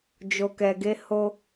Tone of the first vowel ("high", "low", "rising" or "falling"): low